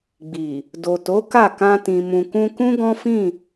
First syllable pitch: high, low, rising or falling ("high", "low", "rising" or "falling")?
low